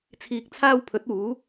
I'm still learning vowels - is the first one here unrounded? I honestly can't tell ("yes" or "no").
yes